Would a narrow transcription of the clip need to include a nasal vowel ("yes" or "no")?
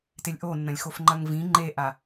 yes